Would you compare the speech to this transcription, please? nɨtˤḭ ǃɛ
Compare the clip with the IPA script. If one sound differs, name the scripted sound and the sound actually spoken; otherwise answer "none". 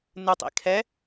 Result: ǃ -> kʰ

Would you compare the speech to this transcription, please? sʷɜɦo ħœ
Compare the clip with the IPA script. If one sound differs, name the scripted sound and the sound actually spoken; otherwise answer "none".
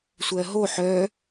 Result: none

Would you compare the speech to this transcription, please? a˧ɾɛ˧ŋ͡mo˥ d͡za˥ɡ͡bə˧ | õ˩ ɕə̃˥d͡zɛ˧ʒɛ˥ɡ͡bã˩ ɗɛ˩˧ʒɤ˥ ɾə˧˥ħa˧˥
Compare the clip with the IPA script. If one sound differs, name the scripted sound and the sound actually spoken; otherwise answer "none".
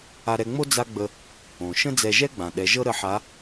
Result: ɕ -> ʃ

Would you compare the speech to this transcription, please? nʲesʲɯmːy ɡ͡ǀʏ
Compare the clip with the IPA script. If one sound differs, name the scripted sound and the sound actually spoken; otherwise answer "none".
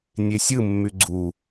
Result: ʏ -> u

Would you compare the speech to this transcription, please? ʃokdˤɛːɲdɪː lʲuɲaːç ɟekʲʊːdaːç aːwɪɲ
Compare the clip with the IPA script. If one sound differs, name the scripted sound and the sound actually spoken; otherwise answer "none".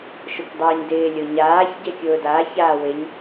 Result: u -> o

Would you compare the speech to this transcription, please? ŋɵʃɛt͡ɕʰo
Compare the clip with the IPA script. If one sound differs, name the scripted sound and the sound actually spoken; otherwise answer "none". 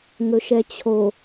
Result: none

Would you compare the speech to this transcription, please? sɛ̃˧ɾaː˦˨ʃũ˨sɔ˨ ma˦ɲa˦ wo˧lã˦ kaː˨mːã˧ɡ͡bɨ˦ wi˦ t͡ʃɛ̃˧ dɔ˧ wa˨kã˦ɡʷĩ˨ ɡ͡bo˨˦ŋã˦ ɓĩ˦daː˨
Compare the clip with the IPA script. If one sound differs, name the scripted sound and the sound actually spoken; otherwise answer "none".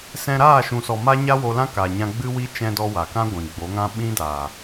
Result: mː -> ɲ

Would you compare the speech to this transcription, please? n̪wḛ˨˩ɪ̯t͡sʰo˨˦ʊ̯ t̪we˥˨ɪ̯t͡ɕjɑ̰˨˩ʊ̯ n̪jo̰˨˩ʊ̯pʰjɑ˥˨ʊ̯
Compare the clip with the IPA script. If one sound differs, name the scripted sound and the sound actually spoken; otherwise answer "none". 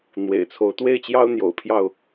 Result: ɑ̰˨˩ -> ɑ˦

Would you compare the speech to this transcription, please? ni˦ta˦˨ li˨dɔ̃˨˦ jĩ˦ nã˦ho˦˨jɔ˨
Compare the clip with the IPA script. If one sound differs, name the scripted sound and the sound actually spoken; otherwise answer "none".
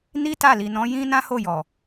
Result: d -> n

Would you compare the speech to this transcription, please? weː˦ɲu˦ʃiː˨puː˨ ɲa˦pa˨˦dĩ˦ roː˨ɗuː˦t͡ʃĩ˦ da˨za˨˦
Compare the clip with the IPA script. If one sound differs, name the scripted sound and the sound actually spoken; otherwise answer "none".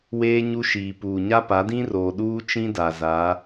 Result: none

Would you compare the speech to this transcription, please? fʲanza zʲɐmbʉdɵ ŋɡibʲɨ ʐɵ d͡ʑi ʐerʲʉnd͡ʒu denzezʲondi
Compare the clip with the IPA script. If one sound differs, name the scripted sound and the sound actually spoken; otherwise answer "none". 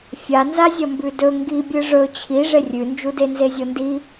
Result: d͡ʑ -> t͡ɕʰ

